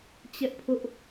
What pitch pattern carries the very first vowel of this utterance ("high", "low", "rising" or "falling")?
high